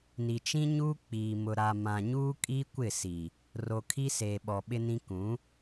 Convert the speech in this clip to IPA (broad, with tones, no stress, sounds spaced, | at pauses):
n i˨ t͡ʃ ĩ˦ ɲ uː˦ k͡p iː˨ m ʊ˨ ɾ a˨ m ã˨ ɲ uː˦ kʼ i˦ kʷ ɪ˦˨ s i˨ | r o˨ kʰ i˦ s eː˨ ɓ ɔ˨ ɓ ɪ˦ n ĩ˦ k ũ˨˦